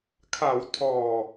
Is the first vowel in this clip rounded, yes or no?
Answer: no